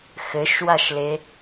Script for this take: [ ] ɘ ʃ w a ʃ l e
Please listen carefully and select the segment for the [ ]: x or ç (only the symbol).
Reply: x